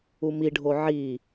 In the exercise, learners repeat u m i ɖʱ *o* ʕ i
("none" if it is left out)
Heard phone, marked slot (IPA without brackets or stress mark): o